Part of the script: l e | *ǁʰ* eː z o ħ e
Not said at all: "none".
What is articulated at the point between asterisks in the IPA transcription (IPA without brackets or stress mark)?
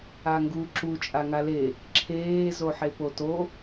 ǁʰ